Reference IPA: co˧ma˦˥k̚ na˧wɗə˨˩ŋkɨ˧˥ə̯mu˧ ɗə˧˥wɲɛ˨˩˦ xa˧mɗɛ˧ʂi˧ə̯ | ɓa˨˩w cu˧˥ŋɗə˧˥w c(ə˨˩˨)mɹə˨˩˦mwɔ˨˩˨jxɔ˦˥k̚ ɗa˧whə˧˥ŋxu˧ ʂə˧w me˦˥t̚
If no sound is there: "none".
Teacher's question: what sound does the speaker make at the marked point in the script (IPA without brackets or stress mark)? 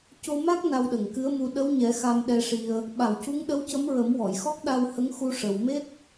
ə˧˥